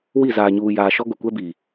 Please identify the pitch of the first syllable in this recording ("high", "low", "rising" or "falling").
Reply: falling